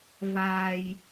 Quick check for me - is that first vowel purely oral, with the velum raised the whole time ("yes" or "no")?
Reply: yes